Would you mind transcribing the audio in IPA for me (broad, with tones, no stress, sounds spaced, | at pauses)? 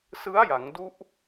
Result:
s ɯ˦˥ a̯ j a˩˦ ŋ d u˦˥ ʔ